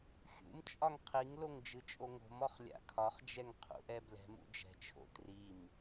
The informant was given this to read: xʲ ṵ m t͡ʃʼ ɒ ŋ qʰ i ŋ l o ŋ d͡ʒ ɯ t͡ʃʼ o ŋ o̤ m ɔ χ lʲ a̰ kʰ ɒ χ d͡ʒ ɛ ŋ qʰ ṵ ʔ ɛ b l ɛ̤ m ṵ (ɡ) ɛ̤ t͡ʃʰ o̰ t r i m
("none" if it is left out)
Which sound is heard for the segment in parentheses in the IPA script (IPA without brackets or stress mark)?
d͡ʒ